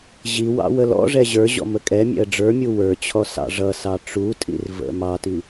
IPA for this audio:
ʑ i w ɑ̰ w ə l ɔ̰ ʐ ɛ ʑ ə˞ ʑ ɔ̰ m ə kʼ ɛ mʲ ɛ̰ ə̯ ɖ͡ʐ ə˞ mʲ u w ə˞ t͡ɕʰ ɔ s ɑ̰ ʐ ʌ s ɑ ʈ͡ʂ u tʼ ḭ r v ə̰ m ɑ t i

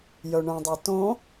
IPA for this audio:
j œ ɳ œ̃ dˤ ɛ t õ

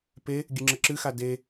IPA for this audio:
p e | ɡʲ ɨ ŋ͡ǁ ə ǁ ɨ x a d e

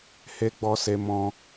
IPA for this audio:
h e˧ ɡ͡b ɔ˧ s e˧ m ɔ̃˦

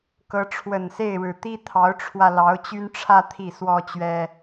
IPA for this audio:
k ɤ˧˥ ʈ͡ʂʰ w ə˨˩ n s e˥˩ ɪ̯ ɻ ɻ̩˨˩ t̪ i˥ t̪ʰ ɑ˧˥ ʊ̯ ʈ͡ʂʰ w ä˧ l ɑ˧˥ ʊ̯ t͡ɕ y˥ n ʈ͡ʂʰ ä˥ t̪ʰ i˥˩ s w ɔ˥ t͡ɕ ɥ ɛ˥

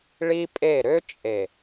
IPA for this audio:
ɭ i˦ pʼ e˦˨ ɾ ø˦ t͡ʃʼ e˨

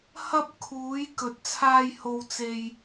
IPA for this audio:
h ɐ˥ p̚ kʰ uː˨˧ j k ɵ˧ t̚ t͡sʰ aː˥ j h o˥ w t͡s e˥ j

